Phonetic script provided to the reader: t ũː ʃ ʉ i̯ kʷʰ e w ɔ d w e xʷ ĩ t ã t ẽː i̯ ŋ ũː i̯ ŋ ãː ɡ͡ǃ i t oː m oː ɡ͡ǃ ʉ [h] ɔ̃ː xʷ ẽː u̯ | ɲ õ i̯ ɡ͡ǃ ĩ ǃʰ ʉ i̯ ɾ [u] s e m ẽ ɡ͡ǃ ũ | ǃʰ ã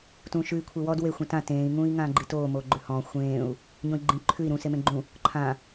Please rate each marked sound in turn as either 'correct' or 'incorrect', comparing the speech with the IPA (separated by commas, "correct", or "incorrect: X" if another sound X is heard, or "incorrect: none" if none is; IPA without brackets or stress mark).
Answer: correct, incorrect: ũ